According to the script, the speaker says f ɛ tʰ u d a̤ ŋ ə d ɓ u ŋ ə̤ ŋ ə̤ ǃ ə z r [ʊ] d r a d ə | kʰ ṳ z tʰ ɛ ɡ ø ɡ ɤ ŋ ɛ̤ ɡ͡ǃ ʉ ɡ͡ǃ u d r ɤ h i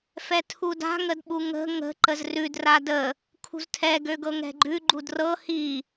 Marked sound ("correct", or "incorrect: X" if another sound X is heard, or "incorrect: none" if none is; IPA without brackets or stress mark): incorrect: ʉ